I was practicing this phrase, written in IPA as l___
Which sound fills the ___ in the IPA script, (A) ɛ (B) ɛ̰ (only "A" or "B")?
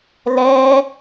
A